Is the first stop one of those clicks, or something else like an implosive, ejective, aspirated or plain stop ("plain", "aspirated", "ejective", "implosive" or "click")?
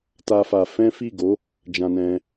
plain